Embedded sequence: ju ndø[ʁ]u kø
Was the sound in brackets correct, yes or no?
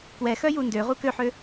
yes